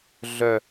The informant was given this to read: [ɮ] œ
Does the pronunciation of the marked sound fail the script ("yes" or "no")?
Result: no